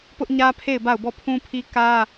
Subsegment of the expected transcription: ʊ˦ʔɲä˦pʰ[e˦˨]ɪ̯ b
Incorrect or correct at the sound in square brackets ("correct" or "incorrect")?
correct